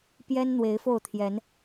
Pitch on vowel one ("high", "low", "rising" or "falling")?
high